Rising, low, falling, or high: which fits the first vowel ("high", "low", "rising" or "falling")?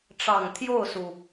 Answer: low